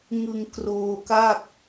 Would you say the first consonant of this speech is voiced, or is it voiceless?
voiced